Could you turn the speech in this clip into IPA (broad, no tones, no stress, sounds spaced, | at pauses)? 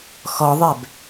x ɔ ðˤ ɛ b